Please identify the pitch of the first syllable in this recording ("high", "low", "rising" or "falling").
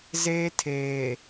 high